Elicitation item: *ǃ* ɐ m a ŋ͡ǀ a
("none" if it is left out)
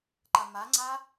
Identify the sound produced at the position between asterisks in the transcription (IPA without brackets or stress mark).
ǃ